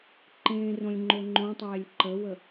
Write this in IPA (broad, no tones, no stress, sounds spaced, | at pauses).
ǃ ẽ r õ lʲ ŋ͡ǃ o ŋ͡ǃ õ tˤ eː lʲ ǃ ə w ə